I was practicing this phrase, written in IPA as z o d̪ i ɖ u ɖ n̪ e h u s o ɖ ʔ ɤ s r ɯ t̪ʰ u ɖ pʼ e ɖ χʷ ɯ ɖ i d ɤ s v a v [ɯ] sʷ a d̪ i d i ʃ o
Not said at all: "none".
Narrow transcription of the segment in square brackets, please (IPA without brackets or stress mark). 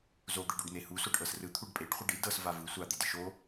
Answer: ɯ